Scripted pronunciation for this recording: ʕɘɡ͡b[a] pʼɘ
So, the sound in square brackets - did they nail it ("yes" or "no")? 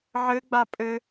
yes